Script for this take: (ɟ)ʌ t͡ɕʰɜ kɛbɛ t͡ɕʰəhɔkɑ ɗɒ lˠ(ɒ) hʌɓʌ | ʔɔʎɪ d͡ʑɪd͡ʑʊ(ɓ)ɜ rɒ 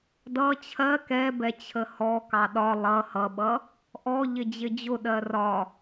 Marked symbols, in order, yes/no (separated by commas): no, no, no